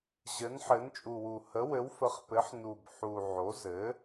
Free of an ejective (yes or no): no